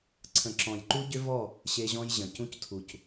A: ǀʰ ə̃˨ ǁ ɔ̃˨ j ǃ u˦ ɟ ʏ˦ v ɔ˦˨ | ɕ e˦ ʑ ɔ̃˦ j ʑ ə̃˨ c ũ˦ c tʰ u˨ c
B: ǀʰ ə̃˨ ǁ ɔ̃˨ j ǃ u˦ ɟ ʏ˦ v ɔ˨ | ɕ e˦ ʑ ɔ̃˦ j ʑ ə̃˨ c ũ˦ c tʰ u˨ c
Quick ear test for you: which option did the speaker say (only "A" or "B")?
A